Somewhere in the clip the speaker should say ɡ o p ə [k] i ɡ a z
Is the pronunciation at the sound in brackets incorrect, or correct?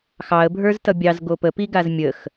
incorrect